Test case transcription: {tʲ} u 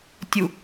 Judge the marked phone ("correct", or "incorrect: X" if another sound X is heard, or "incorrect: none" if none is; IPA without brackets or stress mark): correct